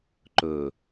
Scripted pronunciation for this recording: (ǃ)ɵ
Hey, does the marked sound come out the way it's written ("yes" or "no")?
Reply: yes